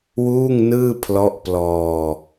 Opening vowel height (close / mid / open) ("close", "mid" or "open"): close